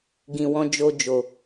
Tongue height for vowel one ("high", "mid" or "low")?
high